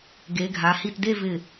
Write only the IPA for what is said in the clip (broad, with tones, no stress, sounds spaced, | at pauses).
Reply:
ɡ e˩˧ ɡʱ a˩˧ h i˧˩ t d e˥˧ v ɪ˧˩